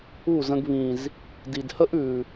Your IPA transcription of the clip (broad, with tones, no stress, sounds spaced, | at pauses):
u˦˨ z ə̃˧ ɡ β ĩ˨ z | d i˨ d h ə˦ ʔ ʉ˨